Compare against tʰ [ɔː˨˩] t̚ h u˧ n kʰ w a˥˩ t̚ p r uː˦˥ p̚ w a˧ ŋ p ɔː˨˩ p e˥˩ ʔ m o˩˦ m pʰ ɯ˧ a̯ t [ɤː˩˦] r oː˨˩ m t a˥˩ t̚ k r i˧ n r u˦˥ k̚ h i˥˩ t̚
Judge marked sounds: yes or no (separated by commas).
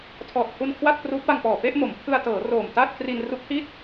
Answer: yes, yes